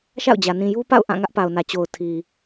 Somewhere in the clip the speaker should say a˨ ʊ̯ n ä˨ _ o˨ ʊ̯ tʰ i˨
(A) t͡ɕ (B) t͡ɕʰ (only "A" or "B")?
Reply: A